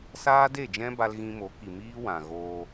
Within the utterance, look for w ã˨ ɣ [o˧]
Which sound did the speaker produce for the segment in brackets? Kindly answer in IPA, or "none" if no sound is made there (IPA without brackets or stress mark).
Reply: oː˧